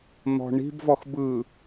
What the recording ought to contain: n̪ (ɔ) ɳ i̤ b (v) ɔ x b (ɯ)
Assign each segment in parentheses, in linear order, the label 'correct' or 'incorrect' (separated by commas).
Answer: incorrect, correct, correct